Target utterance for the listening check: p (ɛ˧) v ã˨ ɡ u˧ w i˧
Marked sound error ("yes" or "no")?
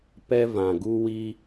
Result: no